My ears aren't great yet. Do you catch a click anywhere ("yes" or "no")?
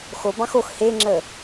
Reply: yes